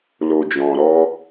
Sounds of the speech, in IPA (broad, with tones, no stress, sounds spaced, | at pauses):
l o˨ d͡ʒ ɔ̃˨ ɾ ɔ˧